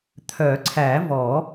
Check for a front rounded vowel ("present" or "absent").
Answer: present